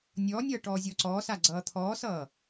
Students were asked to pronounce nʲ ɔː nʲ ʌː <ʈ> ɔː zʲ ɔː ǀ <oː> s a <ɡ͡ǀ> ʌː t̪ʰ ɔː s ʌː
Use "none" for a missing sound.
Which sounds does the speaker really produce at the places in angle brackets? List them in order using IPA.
ʈ, ɔː, ɡ͡ǀ

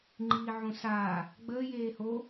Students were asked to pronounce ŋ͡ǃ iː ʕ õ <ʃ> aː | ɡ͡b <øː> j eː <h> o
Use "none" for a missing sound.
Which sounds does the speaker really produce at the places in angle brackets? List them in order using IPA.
s, əː, h

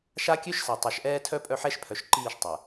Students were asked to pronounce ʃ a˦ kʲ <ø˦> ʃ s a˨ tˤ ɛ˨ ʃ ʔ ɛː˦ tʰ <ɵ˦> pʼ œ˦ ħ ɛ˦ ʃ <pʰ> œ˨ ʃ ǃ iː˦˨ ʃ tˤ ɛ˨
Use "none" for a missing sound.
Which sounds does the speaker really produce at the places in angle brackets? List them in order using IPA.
ø˦, œ˦, pʰ

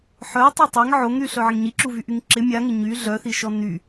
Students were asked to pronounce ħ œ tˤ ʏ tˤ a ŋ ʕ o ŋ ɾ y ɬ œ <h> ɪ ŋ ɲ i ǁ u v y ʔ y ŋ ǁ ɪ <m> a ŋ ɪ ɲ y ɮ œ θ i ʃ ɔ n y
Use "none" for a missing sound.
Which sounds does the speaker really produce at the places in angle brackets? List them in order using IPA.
ʕ, mʲ

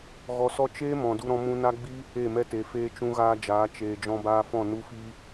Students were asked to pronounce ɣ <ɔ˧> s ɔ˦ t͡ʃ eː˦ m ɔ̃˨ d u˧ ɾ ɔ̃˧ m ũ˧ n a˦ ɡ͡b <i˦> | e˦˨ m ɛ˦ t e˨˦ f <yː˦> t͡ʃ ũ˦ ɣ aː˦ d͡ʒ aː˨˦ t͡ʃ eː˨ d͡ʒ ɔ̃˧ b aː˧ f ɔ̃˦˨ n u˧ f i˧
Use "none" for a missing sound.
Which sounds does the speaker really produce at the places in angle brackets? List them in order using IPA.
ɔ˧, i˦, eː˦

